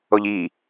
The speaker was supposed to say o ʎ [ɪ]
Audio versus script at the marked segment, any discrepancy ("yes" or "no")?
yes